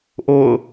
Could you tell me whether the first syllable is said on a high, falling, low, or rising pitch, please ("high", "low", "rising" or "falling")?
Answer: falling